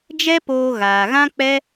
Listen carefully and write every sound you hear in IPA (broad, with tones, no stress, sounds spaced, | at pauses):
d͡ʒ ɛ˦ p oː˧ ɣ aː˨ ɣ ã˦ k͡p ɛ˦